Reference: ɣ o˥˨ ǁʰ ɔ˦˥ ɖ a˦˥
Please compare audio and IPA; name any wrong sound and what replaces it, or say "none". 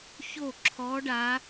ɣ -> ç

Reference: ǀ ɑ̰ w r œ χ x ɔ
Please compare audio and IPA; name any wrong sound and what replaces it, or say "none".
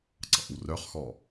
none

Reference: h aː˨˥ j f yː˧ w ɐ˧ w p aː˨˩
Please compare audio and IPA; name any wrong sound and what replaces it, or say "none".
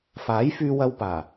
h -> f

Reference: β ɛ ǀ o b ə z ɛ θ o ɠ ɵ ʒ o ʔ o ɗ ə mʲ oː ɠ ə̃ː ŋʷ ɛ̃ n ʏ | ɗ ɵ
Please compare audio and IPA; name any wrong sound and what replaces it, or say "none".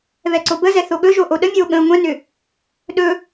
none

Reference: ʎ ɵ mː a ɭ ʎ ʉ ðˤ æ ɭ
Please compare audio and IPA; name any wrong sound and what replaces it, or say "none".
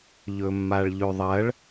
æ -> ɐ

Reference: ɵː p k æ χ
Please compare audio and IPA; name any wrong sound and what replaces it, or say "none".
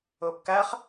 none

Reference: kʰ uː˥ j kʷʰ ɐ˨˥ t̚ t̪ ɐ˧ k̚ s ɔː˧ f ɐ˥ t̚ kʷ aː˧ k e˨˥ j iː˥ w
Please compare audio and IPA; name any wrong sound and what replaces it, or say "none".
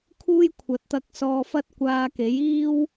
none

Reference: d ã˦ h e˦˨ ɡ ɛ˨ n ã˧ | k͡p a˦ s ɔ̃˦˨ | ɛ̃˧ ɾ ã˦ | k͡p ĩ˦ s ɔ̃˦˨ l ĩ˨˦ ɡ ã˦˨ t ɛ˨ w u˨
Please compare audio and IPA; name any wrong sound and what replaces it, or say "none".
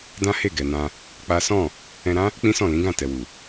none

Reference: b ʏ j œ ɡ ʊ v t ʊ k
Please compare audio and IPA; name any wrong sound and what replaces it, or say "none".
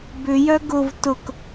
none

